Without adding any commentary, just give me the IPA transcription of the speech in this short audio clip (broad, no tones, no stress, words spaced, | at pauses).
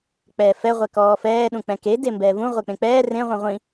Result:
k͡pɛːfɛ ʁʷɛkɔːfɛː ɗũk͡pɛ̃ke dembɛːvũ ʁʷek͡pẽk͡pɛː rẽ ʁʷẽʁʷĩ